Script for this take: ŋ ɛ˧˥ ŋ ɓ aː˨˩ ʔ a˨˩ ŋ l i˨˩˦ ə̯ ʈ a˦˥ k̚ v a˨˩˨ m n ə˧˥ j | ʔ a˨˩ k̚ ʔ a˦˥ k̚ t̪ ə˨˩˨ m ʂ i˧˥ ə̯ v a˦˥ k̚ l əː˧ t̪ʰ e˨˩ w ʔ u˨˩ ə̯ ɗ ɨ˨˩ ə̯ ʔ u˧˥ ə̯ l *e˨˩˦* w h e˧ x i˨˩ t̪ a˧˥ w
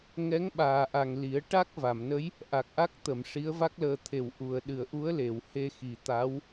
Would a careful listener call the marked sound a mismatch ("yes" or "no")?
yes